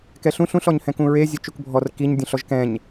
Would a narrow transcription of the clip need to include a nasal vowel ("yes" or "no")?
yes